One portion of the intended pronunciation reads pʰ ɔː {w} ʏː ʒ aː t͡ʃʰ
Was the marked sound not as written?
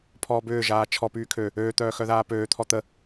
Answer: yes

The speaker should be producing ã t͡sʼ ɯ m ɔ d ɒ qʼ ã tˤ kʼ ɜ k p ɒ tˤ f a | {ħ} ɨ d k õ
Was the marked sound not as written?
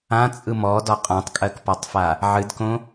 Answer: yes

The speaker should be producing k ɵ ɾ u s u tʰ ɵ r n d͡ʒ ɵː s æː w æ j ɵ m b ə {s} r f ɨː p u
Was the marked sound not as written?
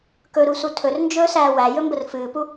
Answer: yes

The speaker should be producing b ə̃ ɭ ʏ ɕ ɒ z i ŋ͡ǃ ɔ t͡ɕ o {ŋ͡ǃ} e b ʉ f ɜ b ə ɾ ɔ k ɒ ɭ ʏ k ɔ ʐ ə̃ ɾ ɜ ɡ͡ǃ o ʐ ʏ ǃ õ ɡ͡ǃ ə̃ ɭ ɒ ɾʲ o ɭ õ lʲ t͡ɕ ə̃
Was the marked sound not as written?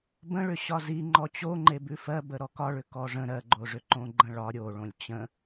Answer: no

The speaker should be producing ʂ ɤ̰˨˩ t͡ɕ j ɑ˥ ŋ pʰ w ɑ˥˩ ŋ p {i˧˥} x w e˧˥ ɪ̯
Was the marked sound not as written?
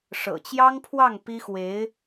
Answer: yes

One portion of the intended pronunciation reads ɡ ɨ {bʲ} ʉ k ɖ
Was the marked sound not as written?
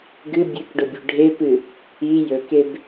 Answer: no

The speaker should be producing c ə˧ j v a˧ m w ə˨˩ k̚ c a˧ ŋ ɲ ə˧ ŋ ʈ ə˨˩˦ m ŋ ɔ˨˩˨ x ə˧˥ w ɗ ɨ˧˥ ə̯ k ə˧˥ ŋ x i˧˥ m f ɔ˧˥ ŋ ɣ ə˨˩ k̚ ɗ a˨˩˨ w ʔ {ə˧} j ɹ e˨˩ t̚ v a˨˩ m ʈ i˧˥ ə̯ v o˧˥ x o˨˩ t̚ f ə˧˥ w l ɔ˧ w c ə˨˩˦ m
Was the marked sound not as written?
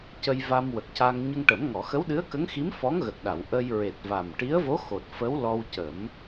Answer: no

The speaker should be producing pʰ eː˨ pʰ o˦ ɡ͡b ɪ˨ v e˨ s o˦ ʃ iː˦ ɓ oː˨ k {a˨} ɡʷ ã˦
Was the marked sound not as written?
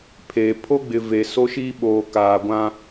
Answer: yes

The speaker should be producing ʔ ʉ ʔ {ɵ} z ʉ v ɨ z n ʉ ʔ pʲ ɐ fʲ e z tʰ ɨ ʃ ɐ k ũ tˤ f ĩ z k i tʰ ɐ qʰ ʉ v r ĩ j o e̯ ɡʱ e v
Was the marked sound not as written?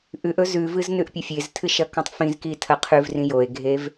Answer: no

